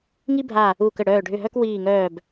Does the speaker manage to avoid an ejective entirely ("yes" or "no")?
yes